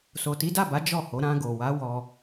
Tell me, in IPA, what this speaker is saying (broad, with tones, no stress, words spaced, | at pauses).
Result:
so˨ti˨˦da˦˨ba˨˦ d͡ʒɔ˦˨ho˨˦ ɾã˧ɡo˨wa˨˦ wɔ˧